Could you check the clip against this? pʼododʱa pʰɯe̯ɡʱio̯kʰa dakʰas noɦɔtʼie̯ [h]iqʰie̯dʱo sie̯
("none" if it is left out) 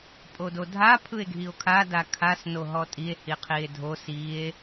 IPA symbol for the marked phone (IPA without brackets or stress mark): h